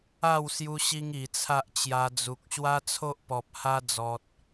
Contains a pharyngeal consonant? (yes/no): no